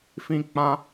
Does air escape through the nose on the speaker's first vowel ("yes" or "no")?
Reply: yes